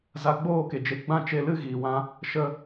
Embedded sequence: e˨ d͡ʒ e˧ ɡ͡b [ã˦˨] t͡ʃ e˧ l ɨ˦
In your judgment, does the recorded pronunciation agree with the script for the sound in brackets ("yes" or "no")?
yes